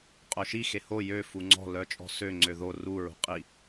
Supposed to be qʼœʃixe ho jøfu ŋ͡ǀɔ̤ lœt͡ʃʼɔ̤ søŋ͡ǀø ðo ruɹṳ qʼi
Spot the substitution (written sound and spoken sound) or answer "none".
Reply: none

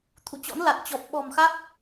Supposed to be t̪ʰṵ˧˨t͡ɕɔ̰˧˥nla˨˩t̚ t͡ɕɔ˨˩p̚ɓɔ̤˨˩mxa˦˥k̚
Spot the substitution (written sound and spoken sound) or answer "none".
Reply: none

